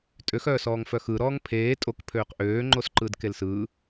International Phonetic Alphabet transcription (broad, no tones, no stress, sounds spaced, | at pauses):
tʼ ø x œː s ɔː ŋ f œ x ɯ ɾ ɔː ŋ pʰ eː tʼ o k pʰ øː q ʔ øː ŋ͡ǃ o s ǃ ɯ d k e l s ɯ